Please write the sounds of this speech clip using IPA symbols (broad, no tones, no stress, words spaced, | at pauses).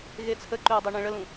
ɣet͡sʰəǃøu̯ dˤøɳẽɭəlũ